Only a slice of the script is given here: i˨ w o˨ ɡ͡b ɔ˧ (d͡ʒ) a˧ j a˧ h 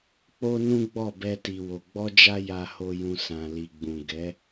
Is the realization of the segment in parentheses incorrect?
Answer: no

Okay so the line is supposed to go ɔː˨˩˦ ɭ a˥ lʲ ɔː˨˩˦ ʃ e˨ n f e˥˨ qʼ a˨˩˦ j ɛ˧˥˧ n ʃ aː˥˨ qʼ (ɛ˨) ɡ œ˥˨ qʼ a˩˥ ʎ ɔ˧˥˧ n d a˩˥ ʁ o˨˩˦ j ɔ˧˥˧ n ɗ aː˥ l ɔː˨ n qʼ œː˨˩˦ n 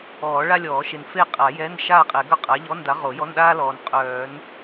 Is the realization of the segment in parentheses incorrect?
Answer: yes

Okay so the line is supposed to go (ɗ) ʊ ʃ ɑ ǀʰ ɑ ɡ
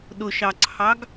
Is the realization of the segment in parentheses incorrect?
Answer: no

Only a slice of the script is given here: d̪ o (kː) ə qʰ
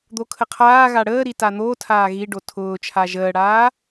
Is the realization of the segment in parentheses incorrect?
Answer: yes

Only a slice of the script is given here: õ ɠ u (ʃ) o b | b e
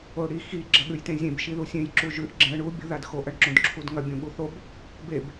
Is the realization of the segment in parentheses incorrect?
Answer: yes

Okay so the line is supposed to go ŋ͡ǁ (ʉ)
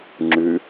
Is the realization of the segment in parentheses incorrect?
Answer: no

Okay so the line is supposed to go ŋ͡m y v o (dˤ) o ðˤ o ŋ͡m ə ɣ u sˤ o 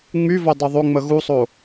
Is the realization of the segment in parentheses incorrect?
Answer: no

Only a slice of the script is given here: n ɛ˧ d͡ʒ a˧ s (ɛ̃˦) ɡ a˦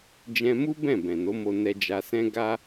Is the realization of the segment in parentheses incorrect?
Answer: no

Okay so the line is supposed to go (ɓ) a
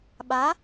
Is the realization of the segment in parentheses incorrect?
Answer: no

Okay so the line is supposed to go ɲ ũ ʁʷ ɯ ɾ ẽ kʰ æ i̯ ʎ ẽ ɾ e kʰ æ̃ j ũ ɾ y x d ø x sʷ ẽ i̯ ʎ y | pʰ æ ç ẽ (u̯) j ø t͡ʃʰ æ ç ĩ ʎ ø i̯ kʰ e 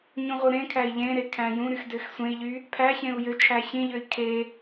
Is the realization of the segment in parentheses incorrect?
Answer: no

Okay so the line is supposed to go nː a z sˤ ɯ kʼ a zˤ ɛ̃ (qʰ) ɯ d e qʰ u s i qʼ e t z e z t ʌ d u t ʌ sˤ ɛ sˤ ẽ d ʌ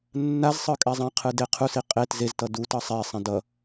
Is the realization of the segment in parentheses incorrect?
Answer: no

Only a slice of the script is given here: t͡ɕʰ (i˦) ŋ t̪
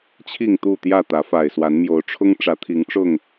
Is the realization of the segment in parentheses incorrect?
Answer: yes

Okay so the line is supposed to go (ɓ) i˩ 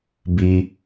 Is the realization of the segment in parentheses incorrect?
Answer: yes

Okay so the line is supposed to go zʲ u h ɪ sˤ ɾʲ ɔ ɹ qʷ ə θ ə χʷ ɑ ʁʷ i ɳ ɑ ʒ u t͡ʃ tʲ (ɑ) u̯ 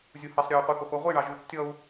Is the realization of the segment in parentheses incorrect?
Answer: yes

